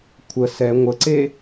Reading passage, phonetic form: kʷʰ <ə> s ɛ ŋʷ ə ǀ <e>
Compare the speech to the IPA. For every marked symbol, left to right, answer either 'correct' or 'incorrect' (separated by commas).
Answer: correct, correct